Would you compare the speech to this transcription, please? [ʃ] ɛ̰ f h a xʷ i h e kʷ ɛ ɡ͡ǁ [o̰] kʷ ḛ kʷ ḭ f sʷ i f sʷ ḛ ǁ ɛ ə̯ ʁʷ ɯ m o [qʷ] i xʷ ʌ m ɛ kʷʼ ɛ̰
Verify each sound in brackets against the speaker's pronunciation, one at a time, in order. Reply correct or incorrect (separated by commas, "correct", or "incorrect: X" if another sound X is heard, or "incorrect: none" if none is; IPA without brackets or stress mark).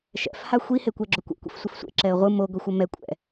correct, incorrect: o, incorrect: ɡʷ